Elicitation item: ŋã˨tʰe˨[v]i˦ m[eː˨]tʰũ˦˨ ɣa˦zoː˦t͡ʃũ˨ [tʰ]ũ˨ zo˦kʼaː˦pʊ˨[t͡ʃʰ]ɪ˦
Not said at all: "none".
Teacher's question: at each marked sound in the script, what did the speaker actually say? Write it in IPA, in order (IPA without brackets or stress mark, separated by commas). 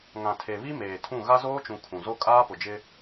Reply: β, eː˨, kʰ, d͡ʒ